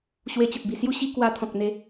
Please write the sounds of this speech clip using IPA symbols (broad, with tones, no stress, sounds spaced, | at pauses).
ɕ w e˧ t͡ɕ ə˨ t̚ b i˨˩ s j u˥˧ ɕ i˦ k w a˧ t̪ʰ ɔ̃˨ k̚ n̪ e˧